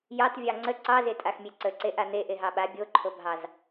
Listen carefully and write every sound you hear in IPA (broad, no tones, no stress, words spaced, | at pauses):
jɑtvʲɑ ŋ͡ǀə ǀɑze tʼaxmʲeǀə ǀeʔan̪e ʔeɦɑɓa bʲoǃʰobʱɑz